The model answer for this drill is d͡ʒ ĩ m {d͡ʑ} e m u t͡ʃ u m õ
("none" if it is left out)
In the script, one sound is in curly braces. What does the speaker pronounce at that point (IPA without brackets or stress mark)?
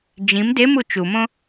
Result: d